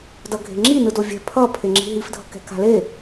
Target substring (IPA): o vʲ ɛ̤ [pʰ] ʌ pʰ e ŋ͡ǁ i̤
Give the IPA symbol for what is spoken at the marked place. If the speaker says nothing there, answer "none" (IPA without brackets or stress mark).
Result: pʰ